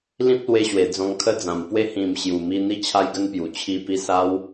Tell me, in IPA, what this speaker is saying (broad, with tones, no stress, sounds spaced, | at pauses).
l ĩ˦ p̚ l w e˧ ɕ w e˨˩ d͡z ɔ̃˧ ŋ kʰ ə˦ d͡z ã˨˩ m p w e˦ h ĩ˨˩ m ɕ j u˨˩ m i˧ n̪ i˦ t͡ɕʰ a˦ j ɡ ə˦ n p j u˨˩ t͡ɕʰ i˧ p i˧ s a˦ w